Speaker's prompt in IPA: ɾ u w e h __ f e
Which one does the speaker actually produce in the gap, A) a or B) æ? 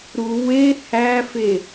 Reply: B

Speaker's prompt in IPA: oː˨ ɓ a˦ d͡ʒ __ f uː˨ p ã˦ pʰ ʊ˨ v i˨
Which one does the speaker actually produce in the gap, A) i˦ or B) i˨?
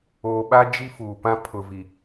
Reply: A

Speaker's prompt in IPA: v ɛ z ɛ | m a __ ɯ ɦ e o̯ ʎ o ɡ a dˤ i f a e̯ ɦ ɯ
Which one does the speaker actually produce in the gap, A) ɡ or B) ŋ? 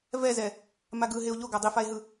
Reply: A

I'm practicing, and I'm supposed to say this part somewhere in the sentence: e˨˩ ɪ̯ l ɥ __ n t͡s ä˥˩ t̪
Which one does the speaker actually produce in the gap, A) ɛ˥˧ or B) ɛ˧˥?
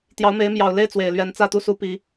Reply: B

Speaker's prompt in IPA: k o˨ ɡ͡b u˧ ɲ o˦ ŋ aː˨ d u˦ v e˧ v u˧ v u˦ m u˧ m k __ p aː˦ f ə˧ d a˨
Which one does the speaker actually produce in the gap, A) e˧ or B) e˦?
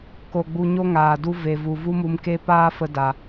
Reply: B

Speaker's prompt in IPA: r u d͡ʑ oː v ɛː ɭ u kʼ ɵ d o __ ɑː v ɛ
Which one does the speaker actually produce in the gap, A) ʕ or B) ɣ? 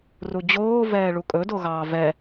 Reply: B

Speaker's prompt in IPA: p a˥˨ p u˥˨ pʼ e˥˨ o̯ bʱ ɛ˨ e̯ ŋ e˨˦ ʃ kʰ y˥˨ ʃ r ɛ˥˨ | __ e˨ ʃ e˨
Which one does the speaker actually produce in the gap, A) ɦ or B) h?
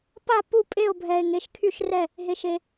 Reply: A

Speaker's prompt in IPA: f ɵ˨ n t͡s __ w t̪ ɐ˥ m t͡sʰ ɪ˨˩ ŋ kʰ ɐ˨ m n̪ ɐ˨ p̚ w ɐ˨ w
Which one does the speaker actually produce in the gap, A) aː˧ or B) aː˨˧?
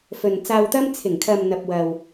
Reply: A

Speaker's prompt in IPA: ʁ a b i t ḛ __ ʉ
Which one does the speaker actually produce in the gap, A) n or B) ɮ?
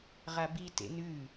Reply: A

